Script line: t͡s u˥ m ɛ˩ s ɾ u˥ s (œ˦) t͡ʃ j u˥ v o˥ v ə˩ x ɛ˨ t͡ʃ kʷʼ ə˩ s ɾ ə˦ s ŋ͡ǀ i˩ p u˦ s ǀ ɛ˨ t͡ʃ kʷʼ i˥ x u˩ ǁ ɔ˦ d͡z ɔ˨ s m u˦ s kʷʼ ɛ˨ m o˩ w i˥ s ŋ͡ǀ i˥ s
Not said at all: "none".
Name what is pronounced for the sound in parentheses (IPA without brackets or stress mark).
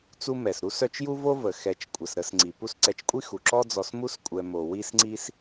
œ˦